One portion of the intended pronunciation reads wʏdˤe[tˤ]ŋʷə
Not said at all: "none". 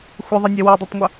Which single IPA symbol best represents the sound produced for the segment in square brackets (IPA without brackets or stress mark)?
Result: tˤ